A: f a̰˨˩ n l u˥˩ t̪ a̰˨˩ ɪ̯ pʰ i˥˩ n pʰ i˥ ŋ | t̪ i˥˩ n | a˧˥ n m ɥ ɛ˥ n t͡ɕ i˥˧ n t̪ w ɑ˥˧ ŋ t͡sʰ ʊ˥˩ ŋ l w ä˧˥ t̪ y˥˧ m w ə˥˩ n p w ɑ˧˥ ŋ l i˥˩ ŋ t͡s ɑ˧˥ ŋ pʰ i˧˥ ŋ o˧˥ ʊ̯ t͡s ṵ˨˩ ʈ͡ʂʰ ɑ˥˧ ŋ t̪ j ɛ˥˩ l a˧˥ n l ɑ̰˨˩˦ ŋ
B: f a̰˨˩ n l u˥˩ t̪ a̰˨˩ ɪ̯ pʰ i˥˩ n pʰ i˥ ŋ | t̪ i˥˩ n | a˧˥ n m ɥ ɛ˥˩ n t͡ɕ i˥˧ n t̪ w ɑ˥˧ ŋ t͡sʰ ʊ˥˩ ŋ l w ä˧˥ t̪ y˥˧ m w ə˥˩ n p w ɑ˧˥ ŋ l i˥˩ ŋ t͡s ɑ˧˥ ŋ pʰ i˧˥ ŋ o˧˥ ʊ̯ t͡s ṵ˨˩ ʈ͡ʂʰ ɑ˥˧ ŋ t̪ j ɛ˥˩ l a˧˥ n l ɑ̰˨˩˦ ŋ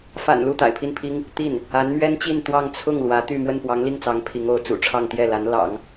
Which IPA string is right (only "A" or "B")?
A